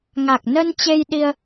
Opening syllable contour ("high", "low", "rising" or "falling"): low